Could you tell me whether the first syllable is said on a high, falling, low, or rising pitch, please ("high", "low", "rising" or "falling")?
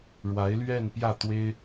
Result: rising